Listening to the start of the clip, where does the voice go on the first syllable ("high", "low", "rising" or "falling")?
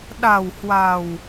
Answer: low